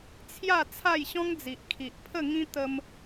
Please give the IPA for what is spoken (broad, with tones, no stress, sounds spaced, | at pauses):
t͡sʰ j a˥˧ t͡sʰ a˥˧ j ɕ ɔ̃˦ ŋ d͡z i˨ ʔ kʰ i˨ ʔ pʰ ə˥˧ ŋ ĩ˦ t̪ ə˦ m